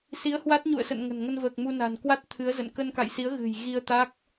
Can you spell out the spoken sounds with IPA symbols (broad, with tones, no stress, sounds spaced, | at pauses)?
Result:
s i˨˦ ə̯ h w a˦˥ t̚ ɲ ṵ˧˨ ə̯ s ə̰˧˨ n ŋ ə̤˨˩ n ŋ ə˧ n v əː˨˩ k̚ m u˧ n a̤˨˩ n k w a˦˥ t̚ t̪ʰ ɨ˨˦ ə̯ z ə̰˧˨ n k ə˧ n k a̰˧˨ j s i˨˦ ə̯ ɣ ɨ̤˨˩ j ɣ i˧ ə̯ t̪ a˦˥ k̚